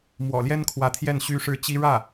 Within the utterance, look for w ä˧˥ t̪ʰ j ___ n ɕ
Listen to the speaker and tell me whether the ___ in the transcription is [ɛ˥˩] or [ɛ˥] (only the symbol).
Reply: ɛ˥˩